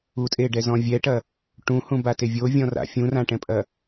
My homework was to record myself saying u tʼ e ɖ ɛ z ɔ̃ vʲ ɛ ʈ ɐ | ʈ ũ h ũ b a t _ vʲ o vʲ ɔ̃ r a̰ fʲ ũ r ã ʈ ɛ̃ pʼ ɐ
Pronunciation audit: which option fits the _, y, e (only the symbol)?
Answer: e